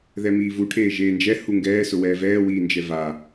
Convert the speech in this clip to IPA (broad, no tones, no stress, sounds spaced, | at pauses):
ð ɛ m iː v u ʈʰ eː ʒ eː n d͡ʒ ɛ h u ŋ ɡ ɛː s ʊ w ɛː v ɛː w iː n d͡ʒ ɛ v a